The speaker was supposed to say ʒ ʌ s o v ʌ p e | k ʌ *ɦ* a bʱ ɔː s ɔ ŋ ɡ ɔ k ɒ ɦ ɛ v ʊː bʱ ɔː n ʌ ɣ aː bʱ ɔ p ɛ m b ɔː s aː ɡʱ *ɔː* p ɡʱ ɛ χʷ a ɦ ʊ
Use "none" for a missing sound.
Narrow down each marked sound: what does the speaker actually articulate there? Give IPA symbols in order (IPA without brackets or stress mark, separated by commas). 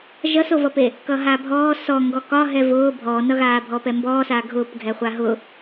ɦ, ʊː